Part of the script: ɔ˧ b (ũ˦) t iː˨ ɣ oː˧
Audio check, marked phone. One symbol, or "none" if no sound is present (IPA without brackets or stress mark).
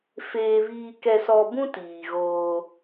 ũ˦